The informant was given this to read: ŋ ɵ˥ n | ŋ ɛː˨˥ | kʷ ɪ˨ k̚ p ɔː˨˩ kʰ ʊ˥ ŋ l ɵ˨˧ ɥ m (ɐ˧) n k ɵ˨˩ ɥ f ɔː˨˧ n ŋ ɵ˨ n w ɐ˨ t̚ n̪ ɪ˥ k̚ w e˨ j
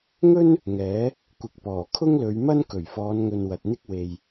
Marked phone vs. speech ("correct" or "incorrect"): incorrect